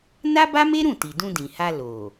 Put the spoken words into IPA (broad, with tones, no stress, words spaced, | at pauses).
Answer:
na˦ba˦me˦ɾũ˦˨ ti˨dũ˧dĩ˨ha˧ lo˨